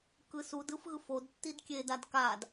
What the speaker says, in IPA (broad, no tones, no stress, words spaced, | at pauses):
kɯsudɯf ɣɯfodtːid kʲedad kad